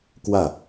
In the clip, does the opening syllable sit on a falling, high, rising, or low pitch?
falling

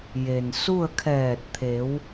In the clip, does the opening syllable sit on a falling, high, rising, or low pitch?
low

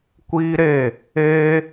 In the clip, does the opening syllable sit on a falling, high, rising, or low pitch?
high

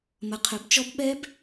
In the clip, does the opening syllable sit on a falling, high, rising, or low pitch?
rising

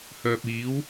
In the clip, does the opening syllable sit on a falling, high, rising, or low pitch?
low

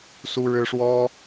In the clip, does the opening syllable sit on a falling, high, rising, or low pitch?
high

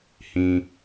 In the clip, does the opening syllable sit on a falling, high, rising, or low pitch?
low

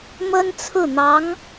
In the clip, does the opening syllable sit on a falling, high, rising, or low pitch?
high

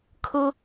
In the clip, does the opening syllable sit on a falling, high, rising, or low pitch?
high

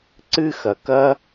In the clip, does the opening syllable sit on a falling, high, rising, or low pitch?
high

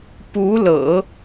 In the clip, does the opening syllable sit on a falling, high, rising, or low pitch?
rising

